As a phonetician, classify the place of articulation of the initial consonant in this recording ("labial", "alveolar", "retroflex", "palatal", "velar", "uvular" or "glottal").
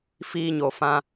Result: labial